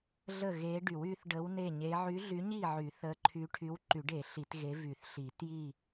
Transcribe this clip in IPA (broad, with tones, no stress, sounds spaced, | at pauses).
ɮ ə˥˨ ɣ e˧˥ ɖ y˨˩˦ w y˧˥ θ ɖ ə˧˥ w n e˥˨ ɲ e˧˥ ʕ y˧˥ ɮ y˧˥ ɲ i˥˨ ʕ y˨˩˦ θ ə˧˥ ǃʰ y˧˥ ʈʰ y˧˥ w ǃ y˨˩˦ ɖ e˨˩˦ ɬ i˨˩˦ t ɣ e˧˥ v y˨˩˦ θ ɬ i˨˩˦ t j i˥˨